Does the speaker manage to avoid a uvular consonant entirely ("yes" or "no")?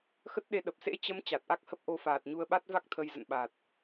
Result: yes